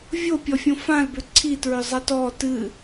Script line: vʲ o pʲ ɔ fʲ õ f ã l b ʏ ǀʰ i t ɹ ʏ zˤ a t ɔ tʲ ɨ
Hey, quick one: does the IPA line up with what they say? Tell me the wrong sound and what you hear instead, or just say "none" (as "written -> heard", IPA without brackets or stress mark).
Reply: tʲ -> t